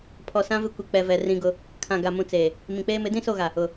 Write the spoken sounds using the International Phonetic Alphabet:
pʰɔ˨sã˦ vɪ˦kʷi˨ k͡pɛ˨vɛ˨ rĩ˦ɡʊ˦ | kʰã˨ɡa˨mũ˨ t͡seː˨ | mĩ˨k͡peː˦ mɪ˨˦dĩ˦so˦˨ɣa˨ | ʊ˨

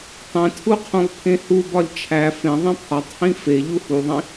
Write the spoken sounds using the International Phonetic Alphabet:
tˤẽtʰuqʰõlˠpʰẽ hubɒlʲ t͡ʃʰæ fẽðˤĩ pʰɒtˤhĩ feʎu huðˤĩ

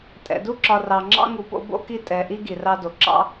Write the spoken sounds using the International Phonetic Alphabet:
tʼɛ̰˩du˦ǁɒ˨ rɑ˩ŋ͡ǁɑ̰˦ ŋu˨po̰˦bo̰˦ki˦ tʼɛ˨ʔi˥ ɡi˩rɑ˦do˩ ǁɑ̰˥

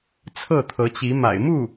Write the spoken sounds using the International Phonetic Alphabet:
t͡sʰɤ˥˩t̪ʰɤ˧˥t͡ɕi˧˥ ma̰˨˩ɪ̯ mu˥˩

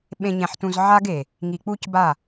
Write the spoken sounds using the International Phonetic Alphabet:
ɓẽ˨ɲɛ̃˨ħtũ˨z ʕa˦ɡe˨ | ŋi˨k͡pu˦cba˦˨

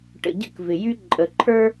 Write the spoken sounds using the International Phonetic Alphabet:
ʈə̰˨ɟə̰˦k vɪ˨jy˦ ǃʼə˨ǃʰə˞˦

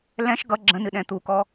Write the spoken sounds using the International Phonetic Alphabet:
lɛ̃ʃ ɡʌ ɡ͡ǁə̃nɨɗɛ̃ t̪ukɔ

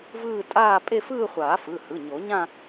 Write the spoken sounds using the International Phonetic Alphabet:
vɯː˥˧tʼaː˥˧ pʼe˥˧fɯː˥˧χʷaː˨˩˦ fɯ˩˧˩hɯ˩˧˩ ɲo˨˩˦ɲã˥˧

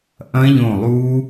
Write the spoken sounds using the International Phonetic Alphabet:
ʔɐ̃˦˥ʎõ˧˩ lˠu˦˥

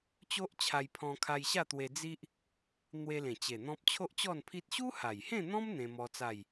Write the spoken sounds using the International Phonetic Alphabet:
t͡ɕo˦ʔt͡ɕʰa˧jpʰɔ̃˧ kʰa˧jɕa˥˧t̪we˧ d͡zi˦ʔ | n̪we˧lẽ˨˩t͡ɕe˨˩ n̪ɔ̃˦p̚ t͡ɕʰo˦ʔt͡ɕɔ˥˧npʰi˦t̚ ɕu˦ha˨˩jhẽ˥˧n̪ɔ̃˦m n̪ẽ˦mɔ˦ t͡sa˥˧j

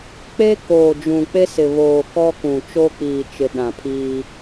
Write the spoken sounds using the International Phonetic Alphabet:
k͡pe˦koː˨d͡ʒũ˨ k͡pe˦sɪ˨βoː˨ kɔ˦kũ˨ t͡ʃo˦k͡piː˨t͡ʃɪ˨ ɗã˨pʰiː˦

